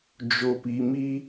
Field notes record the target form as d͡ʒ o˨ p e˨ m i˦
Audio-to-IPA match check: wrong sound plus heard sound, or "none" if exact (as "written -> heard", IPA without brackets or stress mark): e˨ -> i˨